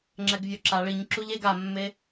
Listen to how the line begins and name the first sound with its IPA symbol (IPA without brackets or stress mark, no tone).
ŋ͡ǁ